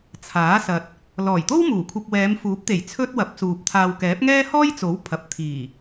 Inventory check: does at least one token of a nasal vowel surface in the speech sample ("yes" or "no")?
no